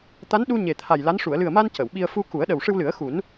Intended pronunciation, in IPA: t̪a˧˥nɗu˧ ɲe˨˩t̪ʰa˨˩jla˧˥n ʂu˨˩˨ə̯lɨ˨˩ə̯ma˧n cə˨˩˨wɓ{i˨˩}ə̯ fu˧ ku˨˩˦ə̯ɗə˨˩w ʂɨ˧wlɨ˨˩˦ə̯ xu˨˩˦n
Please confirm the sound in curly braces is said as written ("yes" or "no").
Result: no